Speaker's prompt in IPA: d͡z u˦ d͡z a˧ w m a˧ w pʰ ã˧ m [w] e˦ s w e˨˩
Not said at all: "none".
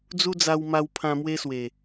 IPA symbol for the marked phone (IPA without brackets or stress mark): w